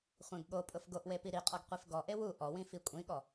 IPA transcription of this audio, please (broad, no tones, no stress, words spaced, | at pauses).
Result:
χʷẽɡɠopʼʊf ɡoʔwe piɾiqʼɔɡ qʷefɡɔʔe wu ʔɔwĩ fikʷʼĩɠɔ